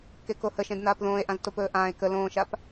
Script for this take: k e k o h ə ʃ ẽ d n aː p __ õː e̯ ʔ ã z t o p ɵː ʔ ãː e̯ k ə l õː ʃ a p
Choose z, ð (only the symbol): ð